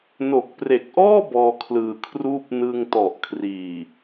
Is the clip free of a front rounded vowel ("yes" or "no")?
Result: yes